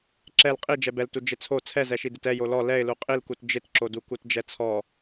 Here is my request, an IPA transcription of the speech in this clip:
ǁ ɛ l qʼ i d͡ʒ ɛ b ɛ l t u d͡ʒ ɪ t͡sʰ o t͡sʰ ɛ z ɛ ʃ i d ɪ t ɛ j o l ɔ l ɛ ɪ̯ l u qʼ i l k u t d͡ʒ ɪ t ǁ o d u k u t d͡ʒ ɛ t͡sʰ ɔ

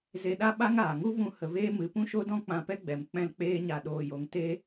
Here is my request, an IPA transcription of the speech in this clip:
z e˧ ɗ a˦ ɓ a˦ ŋ aː˨ ŋ u˦ v ũ˦ h ə˧ v eː˦ m ɨ˨˦ p ũ˦ ʃ o˦ d ɔ̃˦ k͡p ã˧ p ɛ˦ ɡ͡b ɛ˨ m k͡p ɛ̃˦ l k͡p eː˦ ɲ a˧ ɗ oː˧ j o˧ ŋ t e˦

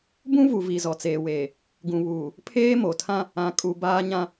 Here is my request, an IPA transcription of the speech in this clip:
b ũ˦ v u˨ v i˨ z ɔ˨ t͡s eː˨ w eː˨ | ɡ ũ˨ β uː˨ | pʰ eː˦ m o˨ tʰ ã˦ | ã˨ kʼ u˨ b aː˦ ɲ ã˦

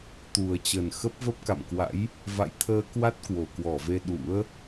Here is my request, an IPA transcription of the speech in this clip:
t̪ u˨˩ ə̯ t͡ɕ ə˨˩ n x ə˦˥ p̚ v ə˦˥ p̚ k a̰˧˨ m k w a̰˧˥ j | v a̰˧˨ j t̪ʰ əː˧ k w a˦˥ t̚ k w o˨˩ k w ɔ˧˩ v e˧ ɗ ṵ˧˥ ə̯

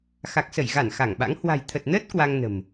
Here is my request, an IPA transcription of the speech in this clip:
x a˨˩ k̚ s ə˧˩ j ɣ a˧˩ n x a˧˩ ŋ ɓ a̰˧˥ ŋ h w a̤˨˩ j t̪ʰ ə˨˩ t̚ n əː˦˥ t̚ k w a˧ ŋ n ə̤˨˩ m

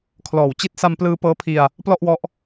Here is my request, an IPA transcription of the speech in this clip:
kʰ l ɔː˨˩ w t͡ɕ i˦˥ t̚ s a˧ m p l ɯː˧ p ɤː˦˥ pʰ i˧ a̯ | p l ɔ˥˩ ʔ w ɔ˦˥ ʔ

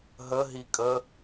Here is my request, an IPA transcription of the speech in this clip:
ɦ ə ɦ i kʼ ə

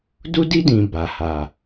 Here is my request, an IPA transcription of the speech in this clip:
d u˦ d i˦ d ĩ˨ b a˨ h a˨

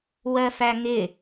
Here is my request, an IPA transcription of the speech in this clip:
w ɜ f æ ŋ ɪ

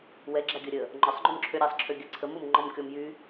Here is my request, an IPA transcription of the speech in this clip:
w ɛ ɡ͡ǁ a ɡʲ ə ɾʲ ə | ŋ͡ǃ ɔ sˤ ŋ͡ǃ o m ǁʰ ø ɾʲ a sˤ ǁʰ ø ɡʲ a ǀʰ ə m o m ŋ͡ǃ ɔ m kʲ ɔ m j y

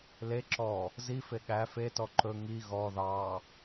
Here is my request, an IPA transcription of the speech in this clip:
l e ǁ ɔ | z i f e ɠ æ f e t ɔ ǃ ɵ ŋ i ɣ ɔ ð ɑ

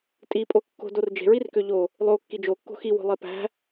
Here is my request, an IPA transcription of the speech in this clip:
tʼ i pʼ o kː o̤ d o r d͡ʒ e̤ ɹ i r k ø ʎ o | lˠ o kː i d͡ʒ o kː o̤ x i w o̤ lˠ e p æ̤

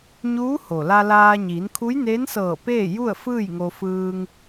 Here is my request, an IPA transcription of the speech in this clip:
ɲ uː˧˥ h o˩ l a˧ l aː˧ ɲ iː˩˧ n kʰ u˧˥ j n eː˧˥ n s ɤː˧˩ p eː˥˨ j u˥˨ ə̯ f ɯː˥˨ j ŋ o˧ f ɯː˧ ŋ

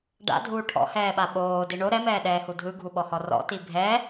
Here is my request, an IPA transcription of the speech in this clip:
ɖ a̰ dʱ uː ʈʰ ɔ̰ h ɛː ɓ a ɓ oː d i ɳ o ɾ ɛ m ɛː ɗ ɛː h u dʱ ɯ ɡʱ u ɓ ɔ h ɔ r ɔ̰ t i bʱ ɛ

